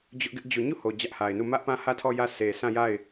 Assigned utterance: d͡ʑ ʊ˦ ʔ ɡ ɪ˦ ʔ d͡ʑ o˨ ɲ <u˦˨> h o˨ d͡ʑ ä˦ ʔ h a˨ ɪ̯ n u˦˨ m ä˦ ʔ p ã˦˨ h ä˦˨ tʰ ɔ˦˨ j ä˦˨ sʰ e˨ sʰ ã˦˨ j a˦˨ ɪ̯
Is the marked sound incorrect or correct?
correct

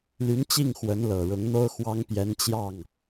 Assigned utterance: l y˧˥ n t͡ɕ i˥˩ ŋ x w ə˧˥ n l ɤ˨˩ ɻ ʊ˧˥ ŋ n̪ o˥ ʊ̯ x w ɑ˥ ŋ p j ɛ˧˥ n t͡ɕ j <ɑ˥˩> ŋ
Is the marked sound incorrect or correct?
correct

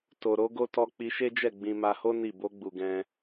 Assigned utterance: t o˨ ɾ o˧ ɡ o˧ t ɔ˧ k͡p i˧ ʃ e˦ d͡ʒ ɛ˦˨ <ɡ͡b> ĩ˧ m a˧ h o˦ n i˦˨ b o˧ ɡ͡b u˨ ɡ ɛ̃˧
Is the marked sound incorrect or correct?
correct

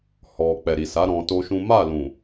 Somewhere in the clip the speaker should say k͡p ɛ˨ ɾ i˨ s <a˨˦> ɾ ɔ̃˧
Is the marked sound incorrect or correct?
correct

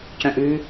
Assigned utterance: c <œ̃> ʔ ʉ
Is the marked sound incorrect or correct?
correct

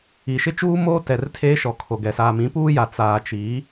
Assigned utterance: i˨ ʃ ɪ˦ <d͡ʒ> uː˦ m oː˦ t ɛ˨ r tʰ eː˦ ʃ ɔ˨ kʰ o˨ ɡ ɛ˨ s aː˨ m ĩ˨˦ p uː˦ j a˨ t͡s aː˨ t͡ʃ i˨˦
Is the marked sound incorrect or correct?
incorrect: t͡ʃ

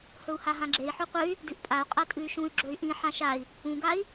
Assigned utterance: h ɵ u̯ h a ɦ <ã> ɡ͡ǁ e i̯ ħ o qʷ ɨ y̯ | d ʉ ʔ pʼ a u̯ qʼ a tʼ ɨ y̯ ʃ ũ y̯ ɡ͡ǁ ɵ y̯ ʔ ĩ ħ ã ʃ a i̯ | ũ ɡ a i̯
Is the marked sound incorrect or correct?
correct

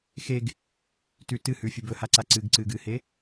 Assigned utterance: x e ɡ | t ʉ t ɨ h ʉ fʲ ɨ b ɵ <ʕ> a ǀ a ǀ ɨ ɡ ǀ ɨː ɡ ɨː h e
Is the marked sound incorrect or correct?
incorrect: h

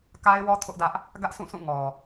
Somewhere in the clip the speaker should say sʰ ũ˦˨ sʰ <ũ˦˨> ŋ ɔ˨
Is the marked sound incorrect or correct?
correct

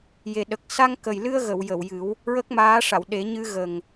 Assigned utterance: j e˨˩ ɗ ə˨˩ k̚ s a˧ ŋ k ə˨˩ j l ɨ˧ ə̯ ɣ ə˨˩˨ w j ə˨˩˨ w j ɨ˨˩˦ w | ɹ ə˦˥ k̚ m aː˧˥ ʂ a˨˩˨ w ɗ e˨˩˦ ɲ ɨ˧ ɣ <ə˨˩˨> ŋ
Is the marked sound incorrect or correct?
incorrect: ə˨˩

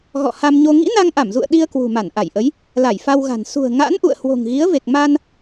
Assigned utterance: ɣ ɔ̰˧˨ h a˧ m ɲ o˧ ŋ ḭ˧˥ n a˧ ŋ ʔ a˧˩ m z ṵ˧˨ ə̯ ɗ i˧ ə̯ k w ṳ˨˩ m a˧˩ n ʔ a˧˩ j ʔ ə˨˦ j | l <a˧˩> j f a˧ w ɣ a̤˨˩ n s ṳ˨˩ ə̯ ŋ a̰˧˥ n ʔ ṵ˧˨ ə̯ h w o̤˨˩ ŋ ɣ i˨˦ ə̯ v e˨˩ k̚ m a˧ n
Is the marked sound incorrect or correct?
correct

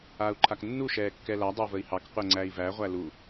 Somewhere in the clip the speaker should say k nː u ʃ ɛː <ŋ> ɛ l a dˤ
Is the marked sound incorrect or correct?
incorrect: kː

